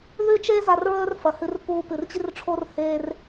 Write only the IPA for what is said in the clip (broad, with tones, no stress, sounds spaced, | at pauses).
ð ʉ˦ t͡ʃ eː˦ z a˧ r ɹ ɵː˦ r f ɐ˨ h ɨ˧ r p uː˧ p ɨ˨ r t͡ɕ i˦ r ʈ͡ʂʰ o˦ r h eː˧ r